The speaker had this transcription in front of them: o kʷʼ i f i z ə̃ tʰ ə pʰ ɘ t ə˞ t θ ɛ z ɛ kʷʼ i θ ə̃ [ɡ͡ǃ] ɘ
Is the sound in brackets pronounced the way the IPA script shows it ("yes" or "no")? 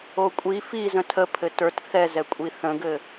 no